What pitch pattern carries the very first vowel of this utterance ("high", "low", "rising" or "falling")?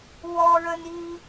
high